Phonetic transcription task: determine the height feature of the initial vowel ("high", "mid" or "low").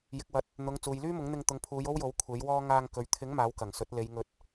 high